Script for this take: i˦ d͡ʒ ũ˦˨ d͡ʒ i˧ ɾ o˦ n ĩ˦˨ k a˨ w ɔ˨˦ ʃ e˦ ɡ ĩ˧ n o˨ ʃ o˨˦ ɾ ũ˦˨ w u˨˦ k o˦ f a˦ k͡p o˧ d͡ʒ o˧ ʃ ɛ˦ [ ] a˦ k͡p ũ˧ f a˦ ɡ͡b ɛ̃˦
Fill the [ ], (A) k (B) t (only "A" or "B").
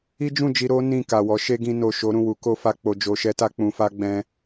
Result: B